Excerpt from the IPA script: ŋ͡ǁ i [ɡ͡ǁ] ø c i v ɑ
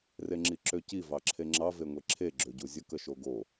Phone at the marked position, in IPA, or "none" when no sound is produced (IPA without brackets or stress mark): ǁ